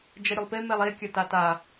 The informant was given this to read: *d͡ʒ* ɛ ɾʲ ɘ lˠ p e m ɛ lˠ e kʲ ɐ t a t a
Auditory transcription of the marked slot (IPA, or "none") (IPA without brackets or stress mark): d͡ʒ